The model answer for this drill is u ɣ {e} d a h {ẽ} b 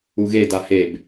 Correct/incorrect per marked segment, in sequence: correct, incorrect: e

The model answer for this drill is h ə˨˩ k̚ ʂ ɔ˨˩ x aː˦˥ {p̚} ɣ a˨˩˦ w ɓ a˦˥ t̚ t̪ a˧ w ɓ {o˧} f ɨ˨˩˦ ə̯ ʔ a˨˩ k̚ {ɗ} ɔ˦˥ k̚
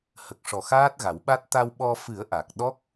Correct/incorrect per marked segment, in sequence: incorrect: t̚, incorrect: ɔ˧, correct

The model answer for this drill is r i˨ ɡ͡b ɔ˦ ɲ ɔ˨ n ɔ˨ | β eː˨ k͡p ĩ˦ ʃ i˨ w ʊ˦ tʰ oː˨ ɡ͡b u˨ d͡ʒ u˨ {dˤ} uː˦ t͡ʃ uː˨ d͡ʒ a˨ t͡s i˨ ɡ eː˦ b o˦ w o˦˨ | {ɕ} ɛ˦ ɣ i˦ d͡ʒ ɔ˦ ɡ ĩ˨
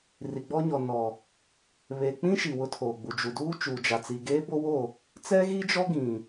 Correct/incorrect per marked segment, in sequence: incorrect: d, incorrect: t͡s

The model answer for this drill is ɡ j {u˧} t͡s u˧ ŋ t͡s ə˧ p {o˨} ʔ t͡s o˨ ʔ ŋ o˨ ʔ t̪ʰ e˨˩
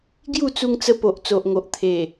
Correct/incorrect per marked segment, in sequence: incorrect: u˥˧, correct

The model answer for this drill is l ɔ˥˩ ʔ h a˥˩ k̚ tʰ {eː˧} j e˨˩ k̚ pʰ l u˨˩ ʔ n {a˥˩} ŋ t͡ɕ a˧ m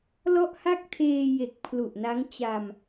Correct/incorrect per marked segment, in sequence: correct, incorrect: a˦˥

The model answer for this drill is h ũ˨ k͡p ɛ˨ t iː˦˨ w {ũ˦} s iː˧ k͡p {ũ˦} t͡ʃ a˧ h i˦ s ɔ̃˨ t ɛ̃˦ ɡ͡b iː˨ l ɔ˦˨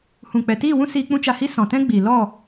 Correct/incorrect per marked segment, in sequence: correct, correct

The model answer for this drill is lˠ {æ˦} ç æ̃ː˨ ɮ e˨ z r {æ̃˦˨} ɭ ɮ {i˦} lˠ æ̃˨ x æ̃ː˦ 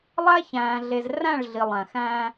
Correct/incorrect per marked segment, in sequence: correct, correct, incorrect: i˨

